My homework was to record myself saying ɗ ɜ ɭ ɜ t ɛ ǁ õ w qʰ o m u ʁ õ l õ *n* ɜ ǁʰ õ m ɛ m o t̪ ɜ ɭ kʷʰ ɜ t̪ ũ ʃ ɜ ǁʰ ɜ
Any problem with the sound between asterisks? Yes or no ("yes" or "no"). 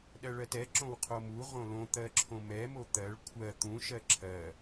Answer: yes